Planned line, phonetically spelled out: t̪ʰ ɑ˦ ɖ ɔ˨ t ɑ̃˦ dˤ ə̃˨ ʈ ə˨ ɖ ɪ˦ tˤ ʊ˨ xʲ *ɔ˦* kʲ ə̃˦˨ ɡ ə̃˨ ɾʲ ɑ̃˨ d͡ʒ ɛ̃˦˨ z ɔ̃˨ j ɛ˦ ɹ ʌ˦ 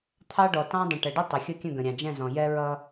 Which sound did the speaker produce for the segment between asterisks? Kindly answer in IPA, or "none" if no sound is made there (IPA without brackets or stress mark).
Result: ʌ˦